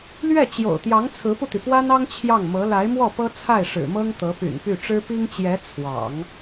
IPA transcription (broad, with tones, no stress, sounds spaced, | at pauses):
l ɥ ɛ˥˩ t͡ɕ j o̰˨˩ ʊ̯ t̪ j ɑ˧˥ ŋ t͡sʰ ɹ̩˧˥ p u˧ t̪ y˩ p w a˥ n ɑ˥ ŋ t͡ɕʰ j ɑ˥˩ ŋ m ɤ˧˥ l a˧˥ ɪ̯ m w ɔ˥˩ p ɤ˥ t͡sʰ a˥˩ ɪ̯ ʂ ɻ̩˨˩ m ɤ˥ ŋ t̪ ɤ˧˥ p y̰˨˩ n p y˥˩ ʈ͡ʂ ɻ̩˥ p i˥ ŋ t͡ɕ j ɛ˧˥ t͡sʰ w ɑ̰˨˩˦ ŋ